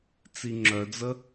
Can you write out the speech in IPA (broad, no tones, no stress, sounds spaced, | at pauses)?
t͡s i ŋ͡ǁ œ d͡z ə